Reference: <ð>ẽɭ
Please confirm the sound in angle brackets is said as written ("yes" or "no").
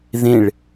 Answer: yes